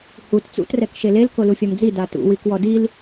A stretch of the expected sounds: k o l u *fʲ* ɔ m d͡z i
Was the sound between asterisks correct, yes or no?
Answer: yes